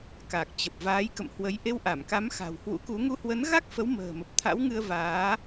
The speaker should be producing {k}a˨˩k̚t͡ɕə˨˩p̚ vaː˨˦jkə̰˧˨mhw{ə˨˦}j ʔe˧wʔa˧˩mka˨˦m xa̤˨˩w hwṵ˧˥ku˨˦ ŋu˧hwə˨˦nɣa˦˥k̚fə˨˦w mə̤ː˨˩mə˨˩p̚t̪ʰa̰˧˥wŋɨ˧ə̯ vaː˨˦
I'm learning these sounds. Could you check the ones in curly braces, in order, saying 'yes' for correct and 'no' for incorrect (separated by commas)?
yes, yes